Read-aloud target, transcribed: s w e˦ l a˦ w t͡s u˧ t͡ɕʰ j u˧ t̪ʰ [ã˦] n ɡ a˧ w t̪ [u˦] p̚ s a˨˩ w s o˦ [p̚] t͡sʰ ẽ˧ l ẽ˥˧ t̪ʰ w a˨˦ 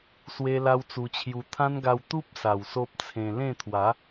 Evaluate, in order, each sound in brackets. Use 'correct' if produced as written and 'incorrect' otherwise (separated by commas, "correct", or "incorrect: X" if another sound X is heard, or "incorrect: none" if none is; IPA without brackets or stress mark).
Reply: correct, correct, correct